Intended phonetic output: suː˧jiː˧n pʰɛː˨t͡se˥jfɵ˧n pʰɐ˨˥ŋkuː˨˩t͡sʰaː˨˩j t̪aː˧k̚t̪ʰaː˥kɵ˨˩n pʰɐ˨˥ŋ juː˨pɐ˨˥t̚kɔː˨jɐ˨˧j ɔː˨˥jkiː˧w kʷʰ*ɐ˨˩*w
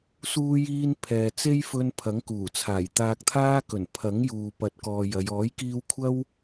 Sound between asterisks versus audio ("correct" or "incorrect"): incorrect